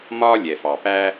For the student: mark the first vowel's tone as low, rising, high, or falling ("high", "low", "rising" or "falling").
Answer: high